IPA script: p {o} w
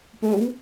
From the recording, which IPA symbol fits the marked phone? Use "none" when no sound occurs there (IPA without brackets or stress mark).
o